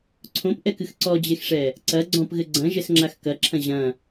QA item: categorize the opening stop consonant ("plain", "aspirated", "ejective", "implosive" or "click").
click